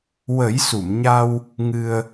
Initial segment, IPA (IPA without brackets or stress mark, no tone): w